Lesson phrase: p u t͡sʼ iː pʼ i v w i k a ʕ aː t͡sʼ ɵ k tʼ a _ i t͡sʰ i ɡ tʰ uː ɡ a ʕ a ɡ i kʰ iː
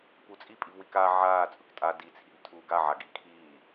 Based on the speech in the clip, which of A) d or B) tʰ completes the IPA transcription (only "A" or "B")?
A